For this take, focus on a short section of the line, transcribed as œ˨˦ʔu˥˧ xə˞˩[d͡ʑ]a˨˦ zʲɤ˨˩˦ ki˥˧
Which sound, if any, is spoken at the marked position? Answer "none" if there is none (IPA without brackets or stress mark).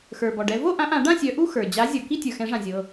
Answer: d͡ʑ